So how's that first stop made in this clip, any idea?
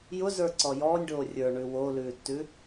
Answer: click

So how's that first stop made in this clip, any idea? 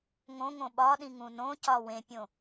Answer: implosive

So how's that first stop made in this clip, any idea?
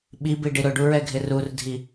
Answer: implosive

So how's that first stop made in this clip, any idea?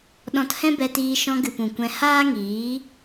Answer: implosive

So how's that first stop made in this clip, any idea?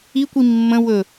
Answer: plain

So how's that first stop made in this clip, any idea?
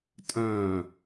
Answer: ejective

